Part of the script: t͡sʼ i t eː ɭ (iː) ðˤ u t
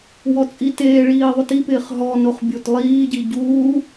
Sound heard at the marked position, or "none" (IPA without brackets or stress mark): iː